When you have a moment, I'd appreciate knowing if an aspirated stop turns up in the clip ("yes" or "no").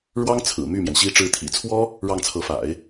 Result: yes